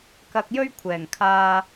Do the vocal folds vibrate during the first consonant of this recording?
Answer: no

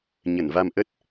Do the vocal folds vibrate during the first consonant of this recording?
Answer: yes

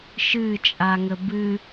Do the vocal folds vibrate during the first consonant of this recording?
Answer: no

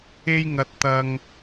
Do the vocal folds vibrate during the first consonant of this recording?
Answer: yes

